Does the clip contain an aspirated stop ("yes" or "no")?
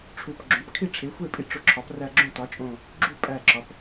yes